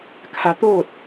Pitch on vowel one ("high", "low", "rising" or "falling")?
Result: rising